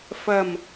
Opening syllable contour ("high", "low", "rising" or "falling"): low